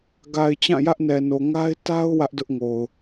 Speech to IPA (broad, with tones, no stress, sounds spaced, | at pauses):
ɡ a˨ ɪ̯ t͡ɕ ã˦˨ j ä˦ ʔ n ɛ˨ n o˨ ŋ a˦ ɪ̯ t a˦ ʊ̯ w ä˦ ʔ d ʊ˦ ʔ ŋ o˨ ʊ̯